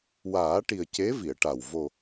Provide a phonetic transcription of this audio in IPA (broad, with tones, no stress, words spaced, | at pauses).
waː˨˩˦ʈi˨˩ə̯ ce˧˥vi˨˩˨ə̯ʈa˨˩w vo˨˩